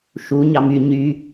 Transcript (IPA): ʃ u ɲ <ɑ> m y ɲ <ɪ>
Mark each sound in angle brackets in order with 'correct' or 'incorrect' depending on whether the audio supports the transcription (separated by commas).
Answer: correct, incorrect